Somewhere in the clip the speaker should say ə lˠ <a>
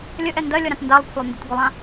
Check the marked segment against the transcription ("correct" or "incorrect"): incorrect